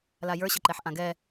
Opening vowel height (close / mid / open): open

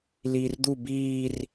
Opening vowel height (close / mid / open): close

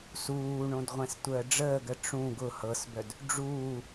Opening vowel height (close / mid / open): close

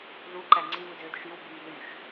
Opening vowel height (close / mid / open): close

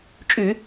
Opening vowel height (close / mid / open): close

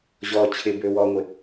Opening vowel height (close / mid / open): mid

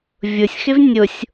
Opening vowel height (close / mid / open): close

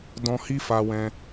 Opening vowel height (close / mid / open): mid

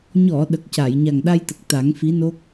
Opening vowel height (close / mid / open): mid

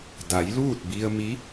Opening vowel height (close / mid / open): open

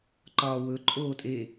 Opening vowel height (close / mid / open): open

